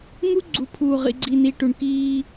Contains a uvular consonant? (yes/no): yes